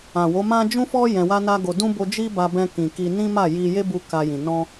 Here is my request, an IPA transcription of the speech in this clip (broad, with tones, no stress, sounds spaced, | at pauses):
ã˨ w o˨˦ m ã˦ d͡ʒ ũ˦ f ɔ˦ j ɛ̃˧ w a˦ n a˦ ɡ o˧ d ũ˦ b o˧ d͡ʒ i˦ b a˧ b ɛ̃˧ k ĩ˨ k i˧ n ĩ˦ m a˦˨ j i˧ j e˦ b u˧ k a˧ j ĩ˨ n ɔ̃˧